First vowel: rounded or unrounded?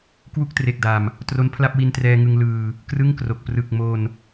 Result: rounded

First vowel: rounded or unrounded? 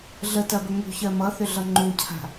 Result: unrounded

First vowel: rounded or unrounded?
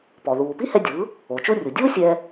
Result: rounded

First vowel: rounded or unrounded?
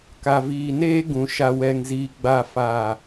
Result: unrounded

